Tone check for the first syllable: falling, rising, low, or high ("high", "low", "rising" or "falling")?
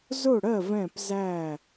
falling